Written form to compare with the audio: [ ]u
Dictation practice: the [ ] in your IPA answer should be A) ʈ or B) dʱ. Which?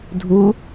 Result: B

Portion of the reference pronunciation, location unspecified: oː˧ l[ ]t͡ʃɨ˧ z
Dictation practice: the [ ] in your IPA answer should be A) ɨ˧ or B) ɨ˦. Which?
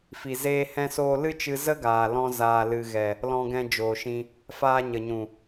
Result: B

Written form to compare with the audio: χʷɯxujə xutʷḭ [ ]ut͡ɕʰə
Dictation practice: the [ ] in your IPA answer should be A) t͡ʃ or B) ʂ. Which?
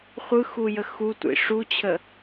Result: B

